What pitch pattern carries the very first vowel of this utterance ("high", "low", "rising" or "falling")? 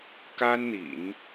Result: high